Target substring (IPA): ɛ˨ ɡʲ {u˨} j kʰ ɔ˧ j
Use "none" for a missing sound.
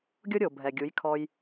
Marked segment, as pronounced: u˨˦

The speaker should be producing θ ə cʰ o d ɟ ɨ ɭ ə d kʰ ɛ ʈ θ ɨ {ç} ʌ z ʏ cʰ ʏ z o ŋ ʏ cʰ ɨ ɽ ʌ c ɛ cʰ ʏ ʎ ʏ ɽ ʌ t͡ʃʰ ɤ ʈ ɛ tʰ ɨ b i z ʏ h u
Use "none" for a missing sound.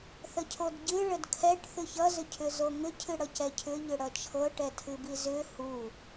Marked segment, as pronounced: ç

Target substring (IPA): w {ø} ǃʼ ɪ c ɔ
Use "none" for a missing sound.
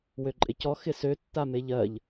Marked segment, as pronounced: ø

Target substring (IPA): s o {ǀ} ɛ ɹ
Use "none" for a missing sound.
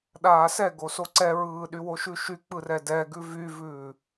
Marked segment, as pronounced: ǀ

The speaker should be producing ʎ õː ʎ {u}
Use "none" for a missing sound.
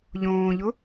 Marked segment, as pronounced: ʊ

